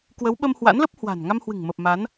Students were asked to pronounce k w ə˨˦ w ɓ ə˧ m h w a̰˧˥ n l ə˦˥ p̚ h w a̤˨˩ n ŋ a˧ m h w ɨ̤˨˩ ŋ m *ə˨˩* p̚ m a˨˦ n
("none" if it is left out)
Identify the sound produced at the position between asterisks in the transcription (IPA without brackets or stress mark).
ə˨˩